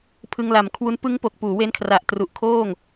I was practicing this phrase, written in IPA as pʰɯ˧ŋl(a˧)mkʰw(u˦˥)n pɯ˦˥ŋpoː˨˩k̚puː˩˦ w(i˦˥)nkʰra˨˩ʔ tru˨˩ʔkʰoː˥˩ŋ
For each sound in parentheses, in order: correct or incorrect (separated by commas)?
incorrect, correct, incorrect